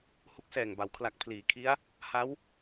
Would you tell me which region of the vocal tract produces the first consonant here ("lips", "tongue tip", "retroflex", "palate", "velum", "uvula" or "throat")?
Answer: throat